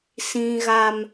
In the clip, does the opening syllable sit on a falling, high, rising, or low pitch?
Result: high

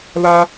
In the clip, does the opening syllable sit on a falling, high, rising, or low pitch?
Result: high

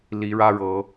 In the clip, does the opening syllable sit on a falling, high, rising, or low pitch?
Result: rising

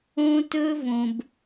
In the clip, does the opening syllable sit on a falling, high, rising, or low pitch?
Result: high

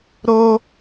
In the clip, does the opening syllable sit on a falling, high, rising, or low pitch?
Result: high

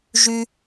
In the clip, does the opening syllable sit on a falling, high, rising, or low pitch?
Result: low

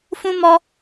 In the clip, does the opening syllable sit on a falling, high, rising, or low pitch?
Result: high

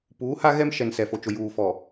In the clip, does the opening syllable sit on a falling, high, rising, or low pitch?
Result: rising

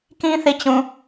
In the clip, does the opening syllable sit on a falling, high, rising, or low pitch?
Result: high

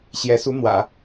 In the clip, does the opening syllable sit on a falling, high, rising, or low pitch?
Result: rising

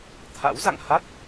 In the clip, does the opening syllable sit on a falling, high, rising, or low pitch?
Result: rising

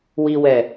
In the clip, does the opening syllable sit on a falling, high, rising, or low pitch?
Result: low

